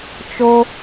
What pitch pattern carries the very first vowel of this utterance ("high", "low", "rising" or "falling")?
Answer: high